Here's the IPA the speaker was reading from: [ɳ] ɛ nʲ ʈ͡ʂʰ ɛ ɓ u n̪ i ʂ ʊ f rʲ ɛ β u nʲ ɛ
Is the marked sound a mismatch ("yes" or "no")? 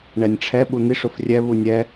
no